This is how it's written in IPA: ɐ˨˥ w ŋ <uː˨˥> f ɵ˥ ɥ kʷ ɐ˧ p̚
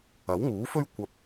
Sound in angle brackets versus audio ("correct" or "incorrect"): correct